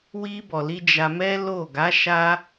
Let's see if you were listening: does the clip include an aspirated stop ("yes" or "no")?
no